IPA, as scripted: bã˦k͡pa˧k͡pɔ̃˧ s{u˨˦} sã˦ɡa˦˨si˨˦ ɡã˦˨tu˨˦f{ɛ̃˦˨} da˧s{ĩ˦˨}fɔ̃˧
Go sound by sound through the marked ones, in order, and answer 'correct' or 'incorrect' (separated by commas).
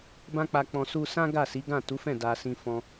incorrect, correct, incorrect